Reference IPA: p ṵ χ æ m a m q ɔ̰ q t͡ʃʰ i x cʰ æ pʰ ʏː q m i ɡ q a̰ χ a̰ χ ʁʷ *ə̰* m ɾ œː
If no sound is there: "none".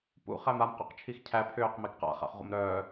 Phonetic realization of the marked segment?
ə̰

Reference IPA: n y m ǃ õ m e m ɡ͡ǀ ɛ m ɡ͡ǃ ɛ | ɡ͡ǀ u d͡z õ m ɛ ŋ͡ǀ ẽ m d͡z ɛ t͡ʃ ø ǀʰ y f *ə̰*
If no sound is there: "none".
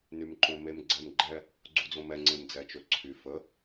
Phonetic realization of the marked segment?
ə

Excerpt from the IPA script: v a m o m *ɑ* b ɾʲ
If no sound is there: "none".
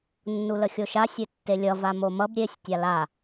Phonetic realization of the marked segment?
ʌ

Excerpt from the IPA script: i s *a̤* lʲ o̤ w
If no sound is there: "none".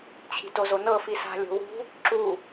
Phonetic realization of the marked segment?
a̤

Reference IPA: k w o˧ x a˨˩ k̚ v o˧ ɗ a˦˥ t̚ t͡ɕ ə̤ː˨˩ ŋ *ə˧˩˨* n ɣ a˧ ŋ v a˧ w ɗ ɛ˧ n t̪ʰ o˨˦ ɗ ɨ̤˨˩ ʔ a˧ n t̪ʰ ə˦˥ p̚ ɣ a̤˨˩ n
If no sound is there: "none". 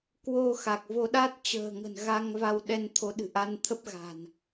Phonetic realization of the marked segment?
ə̤˨˩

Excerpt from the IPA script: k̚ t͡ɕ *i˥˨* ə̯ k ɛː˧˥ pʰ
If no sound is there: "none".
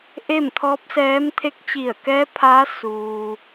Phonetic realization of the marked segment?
i˧˩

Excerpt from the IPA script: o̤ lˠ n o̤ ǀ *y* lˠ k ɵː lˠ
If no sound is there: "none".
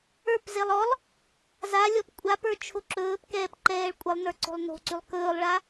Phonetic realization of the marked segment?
y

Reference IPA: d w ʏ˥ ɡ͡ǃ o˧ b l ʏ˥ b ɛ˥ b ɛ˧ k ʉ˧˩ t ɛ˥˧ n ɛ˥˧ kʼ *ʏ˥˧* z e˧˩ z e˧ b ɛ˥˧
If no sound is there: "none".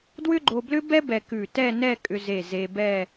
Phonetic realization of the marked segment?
ʏ˧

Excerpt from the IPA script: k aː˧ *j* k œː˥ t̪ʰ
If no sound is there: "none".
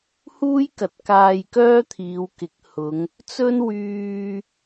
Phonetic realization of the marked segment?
j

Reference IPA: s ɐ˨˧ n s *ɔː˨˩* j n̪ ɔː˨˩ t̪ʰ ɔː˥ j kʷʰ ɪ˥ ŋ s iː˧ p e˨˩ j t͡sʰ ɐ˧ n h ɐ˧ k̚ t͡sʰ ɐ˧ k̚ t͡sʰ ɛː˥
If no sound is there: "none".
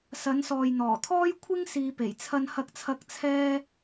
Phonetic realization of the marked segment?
ɔː˨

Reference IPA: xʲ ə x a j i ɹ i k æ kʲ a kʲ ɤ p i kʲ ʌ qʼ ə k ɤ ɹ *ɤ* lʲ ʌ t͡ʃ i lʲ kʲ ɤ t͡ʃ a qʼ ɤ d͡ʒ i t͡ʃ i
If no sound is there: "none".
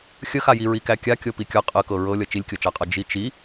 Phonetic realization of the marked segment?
ɤ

